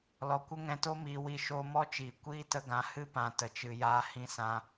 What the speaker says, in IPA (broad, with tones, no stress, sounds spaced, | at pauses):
l ɔ˨ kʷ ə˦ ŋ ɛ̃˧ t o˦ m iː˧ w i˦˨ ʃ oː˦ m ɔ˦ t͡ʃ iː˨ kʷ iː˦ t ə˧ ɡ ã˨˦ h ɨ˦ p ã˨ t ə˨ t͡ʃ ɨ˨ j aː˧ h ĩ˧ s ã˧